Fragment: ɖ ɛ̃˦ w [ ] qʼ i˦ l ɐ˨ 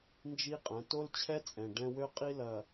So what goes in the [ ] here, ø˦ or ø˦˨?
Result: ø˦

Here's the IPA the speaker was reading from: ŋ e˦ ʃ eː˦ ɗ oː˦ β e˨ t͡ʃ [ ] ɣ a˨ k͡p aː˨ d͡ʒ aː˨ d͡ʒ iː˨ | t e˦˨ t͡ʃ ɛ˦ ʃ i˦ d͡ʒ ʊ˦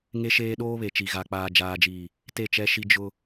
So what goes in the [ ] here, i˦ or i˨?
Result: i˨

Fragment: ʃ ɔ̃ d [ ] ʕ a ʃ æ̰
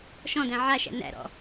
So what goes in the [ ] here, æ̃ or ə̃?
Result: æ̃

